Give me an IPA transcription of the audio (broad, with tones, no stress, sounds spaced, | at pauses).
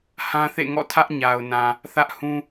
h ã˦ θ ḛ˦˨ ŋ ɔ̰˦˨ tʰ ä˦ ʔ ɲ a˨ ʊ̯ n ã˨ | θ ä˦ ʔ h ũ˦